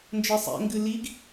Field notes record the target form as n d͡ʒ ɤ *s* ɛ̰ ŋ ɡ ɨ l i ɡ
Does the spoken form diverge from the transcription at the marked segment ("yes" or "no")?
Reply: yes